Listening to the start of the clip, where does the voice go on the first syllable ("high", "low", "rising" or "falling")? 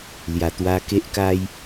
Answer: low